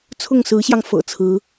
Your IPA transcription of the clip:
t͡sʰʊ˥˩ŋsɹ̩˧˥ɕjɑ˧ŋfɤ̰˨˩ t͡sʰɹ̩˧˥

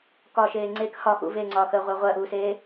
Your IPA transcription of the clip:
kɒʃeː ŋ͡ǀek hɒxṵ veŋ͡ǀɒːxəːʁʷœ ʁʷɜʔuːseː

